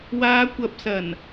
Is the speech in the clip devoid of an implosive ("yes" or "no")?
yes